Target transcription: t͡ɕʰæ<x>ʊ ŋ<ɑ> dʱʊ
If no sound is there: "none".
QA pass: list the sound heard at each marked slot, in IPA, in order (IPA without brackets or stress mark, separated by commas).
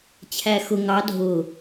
x, ɑ